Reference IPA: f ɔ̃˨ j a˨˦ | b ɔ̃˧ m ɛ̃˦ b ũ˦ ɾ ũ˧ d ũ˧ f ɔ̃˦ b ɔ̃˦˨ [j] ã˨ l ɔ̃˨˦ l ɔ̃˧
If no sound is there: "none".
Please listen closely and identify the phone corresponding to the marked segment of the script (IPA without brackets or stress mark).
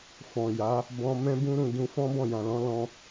j